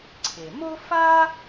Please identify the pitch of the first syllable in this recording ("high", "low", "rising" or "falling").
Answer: low